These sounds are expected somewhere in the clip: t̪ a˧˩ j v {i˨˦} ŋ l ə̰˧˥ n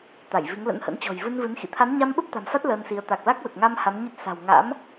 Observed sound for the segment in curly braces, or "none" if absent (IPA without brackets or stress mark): i˨˦